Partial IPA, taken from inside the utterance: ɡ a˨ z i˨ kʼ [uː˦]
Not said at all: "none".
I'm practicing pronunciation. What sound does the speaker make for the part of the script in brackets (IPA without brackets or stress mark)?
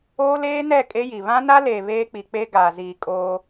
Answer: oː˦